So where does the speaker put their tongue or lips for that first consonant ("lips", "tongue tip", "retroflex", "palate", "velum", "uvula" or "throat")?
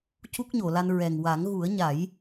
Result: palate